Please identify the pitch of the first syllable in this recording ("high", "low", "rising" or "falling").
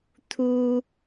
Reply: high